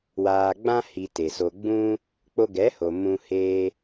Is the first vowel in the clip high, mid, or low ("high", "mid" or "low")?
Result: low